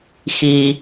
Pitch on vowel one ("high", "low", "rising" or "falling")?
low